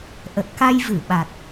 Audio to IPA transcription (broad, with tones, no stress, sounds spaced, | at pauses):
ʔ ə˨˩ t̚ k a˧ j v ɨ˧˩ ɓ a˨˩ t̚